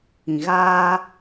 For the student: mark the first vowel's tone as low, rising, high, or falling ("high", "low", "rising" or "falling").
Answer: low